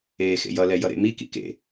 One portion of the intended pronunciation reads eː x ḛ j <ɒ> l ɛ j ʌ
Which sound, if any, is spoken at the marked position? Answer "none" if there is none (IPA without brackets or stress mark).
ʌ